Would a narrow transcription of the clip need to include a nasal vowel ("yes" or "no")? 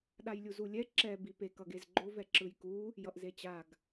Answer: no